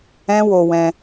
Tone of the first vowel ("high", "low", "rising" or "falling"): high